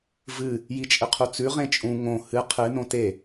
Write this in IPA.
v ɨ | j i t͡ʃʼ ɨ qʰ u t͡s ʉ ʁ ẽ t͡ʃʼ ũ ŋ õ h ɨ qʰ ɨ n õ t e

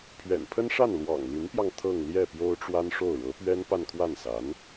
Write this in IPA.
pʰ ɥ ɛ̰˨˩ n pʰ ə˥ n ʂ a˥˩ n l w ɑ̰˨˩ ŋ l y˧˥ n p j ɑ˧ ŋ t̪ʰ ɤ˥˧ ŋ l j ɛ˥˩ p j o˥ ʊ̯ ʈ͡ʂ w a˥ n ʂ o˥˩ ʊ̯ ɻ ɤ˧˥ p ɥ ɛ˥ n p a˥˧ n kʰ w a˥˩ n s a˧˥ n

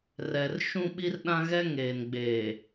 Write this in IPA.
r ɛ˨ r ʃ ũ˦ ɓ i˦ r ɗ ã˦ ɣ ɛ˦ ŋ eː˨ n ɡ͡b eː˨

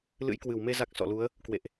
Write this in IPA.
l ɨ̰˧˥ j k w ɨ˧˩ w m e˧ z a˦˥ k̚ s ɔ̰˧˨ l u˨˦ ə̯ | k w ḛ˧˨ ʔ

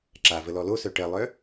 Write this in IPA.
ǁ a v ə l ɔ l o s œ ʈ ɜ lˠ œ

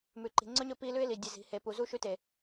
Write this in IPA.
m ʉ˨ ǃ i̤˨ ŋ͡ǀ ɵ˦ ɲ ɵ˧ p i˧ l ʉ˦ ɪ̯ l i˨ dʲ ɨ˨ z i̤˨ h e˨ p u˨ z u˦˨ ʃ ʉ˧ t e˨

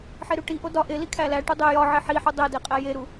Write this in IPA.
ħ e ɾ u ʈ i ʔ o d ɒ ʔ e l i kʰ æ l æ ʈ u dˤ e j ɒ ʕ e ħ i ħ u dˤ e d e qʼ æ j e ɾ u

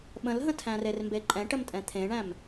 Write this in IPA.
ɓ ə̃ l ɦ ə̃ tʰ æ̃ r e r m b e ǃʼ ɛ̃ ʈ ə m tʼ ɛ̃ t̪ʰ ẽ ɳ æ̃ m

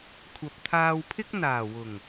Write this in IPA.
kʷʰ ɐ˨ p̚ t̪ʰ aː˧ w pʰ ɪ˥ k̚ n̪ aː˨˩ w ʊ˨˩ ŋ

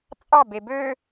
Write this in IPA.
t͡sʼ ɑ b e b ø

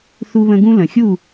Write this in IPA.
θ u˦ β ə̃˦ ɡ ũ˦ l ə̃˨ xʲ u˦˨

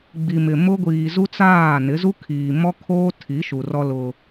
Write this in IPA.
ɡ͡b i˨ m ɪ˨ m ʊ˦ ɡʷ iː˨ z u˦ t͡s aː˦˨ n ɪ˨˦ z u˦ kʰ iː˨ m ɔ˦ kʰ oː˦ tʰ i˨˦ ʃ u˨ r ɔ˦ l ʊ˦

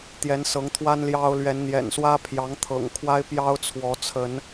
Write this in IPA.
t̪ j ɛ˨˦ n s ɤ˨˦ ŋ t̪ʰ w a˦ n l j ɑ˦ ʊ̯ l ɥ ɛ˨˦ n n̪ j ɛ̰˨˩ n s w ä˦ pʰ j ɑ˨˦ ŋ t̪ʰ ɤ̰˨˩ ŋ kʰ w a˦ ɪ̯ p j ɑ˦ ʊ̯ t͡sʰ w ɔ˨˦ t͡sʰ ə˨˦ n

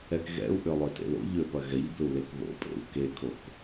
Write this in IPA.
ɛ k ɣ ɛ̰ u̯ ʔ ʏ lˠ ø t ḛ l o̰ ʎ ø p ɐ ɣ ɛ ʎ b ʏ u̯ l e k ð o̰ pʼ ḛ u̯ k e kʰ o k

